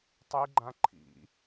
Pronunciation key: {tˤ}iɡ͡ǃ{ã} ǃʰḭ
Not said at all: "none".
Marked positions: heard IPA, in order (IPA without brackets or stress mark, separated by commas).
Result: tˤ, ã